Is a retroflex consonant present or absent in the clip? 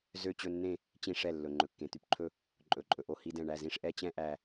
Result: present